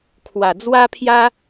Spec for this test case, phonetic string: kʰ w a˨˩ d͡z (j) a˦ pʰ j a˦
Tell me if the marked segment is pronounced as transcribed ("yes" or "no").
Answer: no